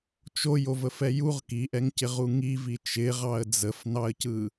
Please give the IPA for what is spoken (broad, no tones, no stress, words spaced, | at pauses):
t͡ʃojo vəfɛjuʁ kiʔɛŋcɪʁu ŋivi t͡ʃɪʁɑə̯ d͡zəfnɑə̯cɯ